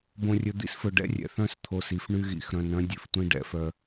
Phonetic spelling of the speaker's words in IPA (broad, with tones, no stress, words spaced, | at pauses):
bõ˨rʲɵ˨d̪ḭ˦sfɵ˨ ɖɛ̰˦rʲɛ̰˨θœ̃˦s t̪ʰo˨s i˨fɳy˦ɣḭ˨x ɾœ̃˨nœ̃˦ dʲʉ˨ftʷĩ˦ ɖɛ̰˨˦ fœ˦